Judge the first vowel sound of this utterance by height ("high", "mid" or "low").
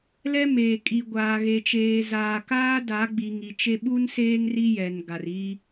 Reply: mid